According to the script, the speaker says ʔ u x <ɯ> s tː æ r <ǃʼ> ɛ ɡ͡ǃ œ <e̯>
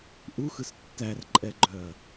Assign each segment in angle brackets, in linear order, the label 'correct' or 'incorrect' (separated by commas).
correct, correct, incorrect